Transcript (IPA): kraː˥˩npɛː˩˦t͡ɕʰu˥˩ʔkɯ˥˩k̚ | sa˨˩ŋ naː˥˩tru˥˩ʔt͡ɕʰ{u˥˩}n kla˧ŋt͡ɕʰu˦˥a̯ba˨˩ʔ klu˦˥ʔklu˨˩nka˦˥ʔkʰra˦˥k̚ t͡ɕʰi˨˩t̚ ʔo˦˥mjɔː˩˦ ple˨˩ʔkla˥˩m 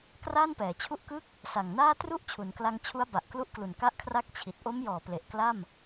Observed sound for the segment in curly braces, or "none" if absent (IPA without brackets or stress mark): u˩˦